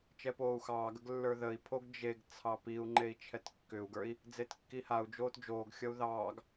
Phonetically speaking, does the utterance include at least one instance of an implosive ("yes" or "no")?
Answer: no